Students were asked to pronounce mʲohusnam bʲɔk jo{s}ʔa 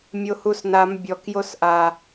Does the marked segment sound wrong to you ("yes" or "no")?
no